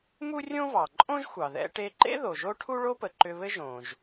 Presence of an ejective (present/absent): present